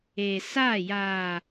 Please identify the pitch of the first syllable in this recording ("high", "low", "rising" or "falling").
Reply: low